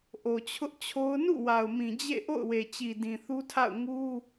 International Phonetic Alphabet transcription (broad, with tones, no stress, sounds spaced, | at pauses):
ʔ o˨ t͡ɕʰ ʊ˦ ʔ t͡ɕʰ o˦ ʊ̯ n ṵ˦˨ w a˨ ʊ̯ m ĩ˨ d͡ʑ ḛ˦˨ ʔ o̰˦˨ ʊ̯ w e˨ t͡ɕ i˨ d ĩ˨ θ u˦ tʰ a̰˦˨ ʊ̯ ŋ u˦